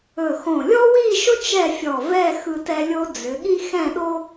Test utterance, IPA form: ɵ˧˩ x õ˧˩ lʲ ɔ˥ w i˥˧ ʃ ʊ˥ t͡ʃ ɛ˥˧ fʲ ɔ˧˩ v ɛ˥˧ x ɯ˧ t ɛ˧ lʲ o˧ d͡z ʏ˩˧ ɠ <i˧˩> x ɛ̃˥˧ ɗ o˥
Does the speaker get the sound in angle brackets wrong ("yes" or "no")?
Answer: yes